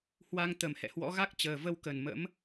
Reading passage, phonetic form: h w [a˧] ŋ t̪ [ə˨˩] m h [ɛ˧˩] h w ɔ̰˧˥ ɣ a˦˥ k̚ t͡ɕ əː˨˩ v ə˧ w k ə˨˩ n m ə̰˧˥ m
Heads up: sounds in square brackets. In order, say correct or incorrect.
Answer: correct, correct, incorrect

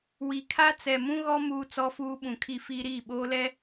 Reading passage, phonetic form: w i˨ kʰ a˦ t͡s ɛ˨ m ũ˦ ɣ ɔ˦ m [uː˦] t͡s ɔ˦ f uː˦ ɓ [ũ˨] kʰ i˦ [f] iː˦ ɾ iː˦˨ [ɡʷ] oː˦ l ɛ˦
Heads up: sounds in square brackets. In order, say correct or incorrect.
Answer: correct, correct, correct, incorrect

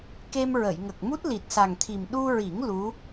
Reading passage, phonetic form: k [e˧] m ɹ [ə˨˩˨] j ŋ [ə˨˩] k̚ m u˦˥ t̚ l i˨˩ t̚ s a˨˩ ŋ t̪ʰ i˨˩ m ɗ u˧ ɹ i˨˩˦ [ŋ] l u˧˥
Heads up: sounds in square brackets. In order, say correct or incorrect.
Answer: correct, correct, correct, correct

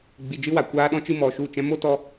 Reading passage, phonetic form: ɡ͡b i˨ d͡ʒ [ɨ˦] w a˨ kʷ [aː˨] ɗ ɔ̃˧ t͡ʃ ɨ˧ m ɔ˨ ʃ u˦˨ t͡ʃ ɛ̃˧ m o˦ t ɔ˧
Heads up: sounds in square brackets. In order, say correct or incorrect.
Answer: correct, incorrect

